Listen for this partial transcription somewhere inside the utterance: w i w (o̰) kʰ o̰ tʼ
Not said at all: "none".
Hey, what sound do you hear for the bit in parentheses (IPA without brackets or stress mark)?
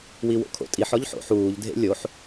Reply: o̰